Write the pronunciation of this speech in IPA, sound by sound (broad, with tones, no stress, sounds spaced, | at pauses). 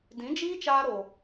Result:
d ĩ˨˦ d͡ʒ iː˦ t͡ʃ aː˧ ɾ o˨